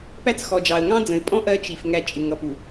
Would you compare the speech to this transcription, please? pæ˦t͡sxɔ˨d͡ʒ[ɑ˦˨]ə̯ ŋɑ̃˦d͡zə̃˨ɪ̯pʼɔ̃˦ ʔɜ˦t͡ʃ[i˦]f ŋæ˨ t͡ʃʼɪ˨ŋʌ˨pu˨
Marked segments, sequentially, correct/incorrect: incorrect, incorrect

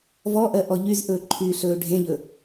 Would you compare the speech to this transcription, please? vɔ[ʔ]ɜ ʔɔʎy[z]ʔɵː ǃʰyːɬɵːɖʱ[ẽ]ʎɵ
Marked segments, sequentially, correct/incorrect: correct, correct, correct

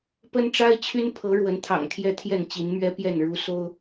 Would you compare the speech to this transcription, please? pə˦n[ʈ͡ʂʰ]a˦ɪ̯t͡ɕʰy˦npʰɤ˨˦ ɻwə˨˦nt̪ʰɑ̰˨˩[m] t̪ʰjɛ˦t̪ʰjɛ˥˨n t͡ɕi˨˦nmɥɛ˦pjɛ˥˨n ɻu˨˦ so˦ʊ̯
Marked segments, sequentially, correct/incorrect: incorrect, incorrect

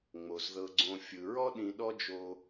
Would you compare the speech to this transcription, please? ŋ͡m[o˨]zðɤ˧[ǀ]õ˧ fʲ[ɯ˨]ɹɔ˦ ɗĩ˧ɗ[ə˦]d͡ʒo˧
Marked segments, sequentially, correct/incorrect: correct, incorrect, correct, incorrect

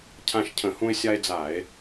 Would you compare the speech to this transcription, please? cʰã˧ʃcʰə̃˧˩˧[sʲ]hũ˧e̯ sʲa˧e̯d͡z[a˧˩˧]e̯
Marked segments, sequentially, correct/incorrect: incorrect, correct

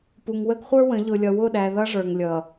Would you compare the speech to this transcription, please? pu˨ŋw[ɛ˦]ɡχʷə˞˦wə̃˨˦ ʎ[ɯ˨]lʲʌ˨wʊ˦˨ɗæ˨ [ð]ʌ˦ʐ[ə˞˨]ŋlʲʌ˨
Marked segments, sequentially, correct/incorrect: incorrect, incorrect, correct, correct

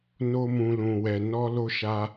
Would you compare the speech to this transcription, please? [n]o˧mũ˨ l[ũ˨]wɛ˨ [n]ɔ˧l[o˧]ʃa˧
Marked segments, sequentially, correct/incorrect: correct, correct, correct, correct

